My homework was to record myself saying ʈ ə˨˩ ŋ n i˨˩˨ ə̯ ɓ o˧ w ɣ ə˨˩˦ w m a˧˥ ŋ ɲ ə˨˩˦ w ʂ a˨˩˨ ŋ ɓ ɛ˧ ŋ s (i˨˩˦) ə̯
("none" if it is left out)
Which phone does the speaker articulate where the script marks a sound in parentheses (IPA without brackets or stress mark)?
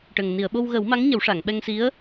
i˧˥